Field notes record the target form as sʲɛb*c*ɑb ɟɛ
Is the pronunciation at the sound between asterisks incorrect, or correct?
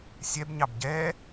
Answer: incorrect: ɲ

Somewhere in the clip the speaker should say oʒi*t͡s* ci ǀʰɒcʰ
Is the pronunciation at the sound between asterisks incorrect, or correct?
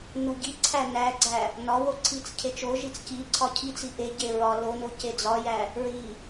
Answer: correct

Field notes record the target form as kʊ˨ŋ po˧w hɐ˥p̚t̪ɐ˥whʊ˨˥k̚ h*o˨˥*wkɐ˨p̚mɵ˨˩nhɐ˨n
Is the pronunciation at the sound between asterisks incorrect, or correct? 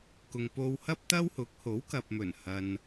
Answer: correct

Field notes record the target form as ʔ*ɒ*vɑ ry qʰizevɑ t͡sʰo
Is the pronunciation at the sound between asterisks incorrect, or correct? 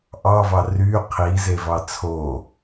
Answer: incorrect: ɑ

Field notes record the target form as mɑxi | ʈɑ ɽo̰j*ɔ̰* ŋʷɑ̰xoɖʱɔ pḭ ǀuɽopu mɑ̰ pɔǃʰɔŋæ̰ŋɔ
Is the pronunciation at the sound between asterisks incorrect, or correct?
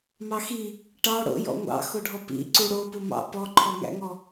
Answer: correct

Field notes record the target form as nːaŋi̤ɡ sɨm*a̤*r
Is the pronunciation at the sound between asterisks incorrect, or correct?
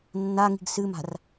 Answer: correct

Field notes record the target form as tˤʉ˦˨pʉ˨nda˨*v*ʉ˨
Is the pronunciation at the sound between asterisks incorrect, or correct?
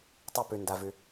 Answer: correct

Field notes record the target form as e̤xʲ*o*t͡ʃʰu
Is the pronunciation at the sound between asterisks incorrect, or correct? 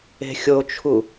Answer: correct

